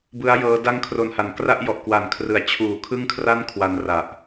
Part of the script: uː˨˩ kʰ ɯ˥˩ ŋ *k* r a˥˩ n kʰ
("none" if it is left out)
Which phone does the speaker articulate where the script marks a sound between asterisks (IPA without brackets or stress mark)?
kʰ